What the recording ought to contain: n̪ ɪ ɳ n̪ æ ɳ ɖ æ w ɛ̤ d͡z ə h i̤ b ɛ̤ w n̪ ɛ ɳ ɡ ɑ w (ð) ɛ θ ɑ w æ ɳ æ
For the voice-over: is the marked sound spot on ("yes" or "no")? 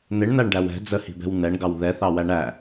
yes